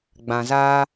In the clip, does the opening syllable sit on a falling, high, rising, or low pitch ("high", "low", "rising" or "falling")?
low